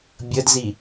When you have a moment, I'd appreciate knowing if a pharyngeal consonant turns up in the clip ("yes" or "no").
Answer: no